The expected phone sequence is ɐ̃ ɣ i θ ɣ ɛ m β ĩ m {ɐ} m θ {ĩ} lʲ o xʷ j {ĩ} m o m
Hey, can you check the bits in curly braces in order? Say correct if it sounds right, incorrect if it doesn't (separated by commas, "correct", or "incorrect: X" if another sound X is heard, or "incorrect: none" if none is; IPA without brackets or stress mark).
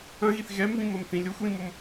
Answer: correct, correct, correct